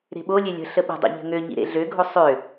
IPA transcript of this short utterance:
ɾe̤ɓolʲe lʲə̤ ɬəɓə̤dˤo̰ ʎə̤ŋøɲḭ ɾḛɮøɡʱo sˤø

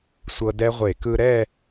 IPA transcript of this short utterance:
sʷɤ˧dɛ˦˥ʁʷe˧˩˧ kɯ˧ɾɛ˥˧

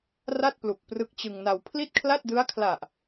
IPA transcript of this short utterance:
ra˥˩t̚plu˨˩k̚ prɯ˦˥k̚t͡ɕɯ˧ŋna˧w pʰli˥˩t̚kʰla˥˩t̚dɯ˦˥a̯kʰla˨˩ʔ

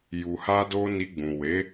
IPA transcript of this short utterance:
ju˨ha˧do˧ ni˧ɡ͡bũ˨ we˨˦

